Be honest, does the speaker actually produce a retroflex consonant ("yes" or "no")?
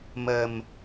no